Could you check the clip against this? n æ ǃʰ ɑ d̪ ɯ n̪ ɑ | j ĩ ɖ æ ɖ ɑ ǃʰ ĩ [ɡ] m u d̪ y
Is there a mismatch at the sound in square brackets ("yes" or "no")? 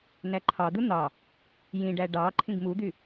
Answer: no